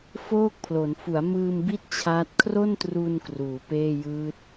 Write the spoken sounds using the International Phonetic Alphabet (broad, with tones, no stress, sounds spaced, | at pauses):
f oː˥˩ k̚ pʰ l o˩˦ n f u˩˦ a̯ m ɯː˧ m b i˦˥ t̚ t͡ɕʰ aː˦˥ t̚ kʰ r o˥˩ n t r u˧ n k r uː˩˦ p eː˥˩ j ɯː˦˥ t̚